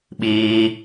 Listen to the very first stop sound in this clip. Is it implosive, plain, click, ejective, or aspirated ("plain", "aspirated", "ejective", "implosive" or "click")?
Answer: implosive